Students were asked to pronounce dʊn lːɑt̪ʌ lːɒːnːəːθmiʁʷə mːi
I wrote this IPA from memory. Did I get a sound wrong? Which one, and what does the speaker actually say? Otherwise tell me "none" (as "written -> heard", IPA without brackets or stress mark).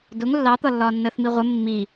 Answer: n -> ŋ